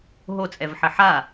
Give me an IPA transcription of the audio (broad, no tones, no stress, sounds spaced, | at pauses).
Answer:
ɦ o t͡sʼ ɛ v ħ ɘ ħ a